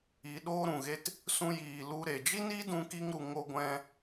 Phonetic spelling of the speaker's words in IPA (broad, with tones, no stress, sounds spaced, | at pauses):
i˨˦ ɗ oː˦ ɾ ũ˨ ɣ e˦ t | s ũ˧ j iː˨ l u˧ ɾ e˨ d͡ʒ i˦ n i˦ d ũ˦ k i˦ ŋ ɾ u˧ ŋ o˦ ɡʷ ɛ̃˦